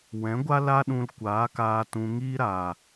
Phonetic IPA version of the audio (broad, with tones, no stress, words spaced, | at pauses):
wɛ̃˨˦ɡʷa˦ la˦ɗũ˧l kʷaː˨˦kaː˧tũ˧ŋiː˦ ɾa˨